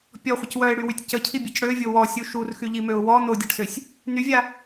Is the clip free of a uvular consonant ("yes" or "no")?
no